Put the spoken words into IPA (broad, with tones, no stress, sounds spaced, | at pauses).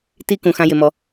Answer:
t i˧ k ũ˨ x ã˧ j ɪ˧ m ɔ˧